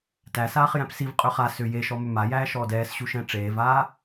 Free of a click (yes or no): yes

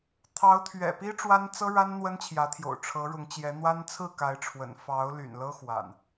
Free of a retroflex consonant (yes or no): no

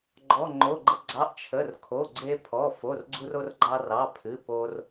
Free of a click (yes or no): no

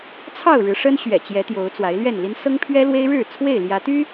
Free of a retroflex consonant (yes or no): no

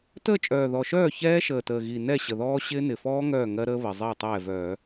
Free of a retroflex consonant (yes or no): yes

